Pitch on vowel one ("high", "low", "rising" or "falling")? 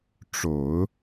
low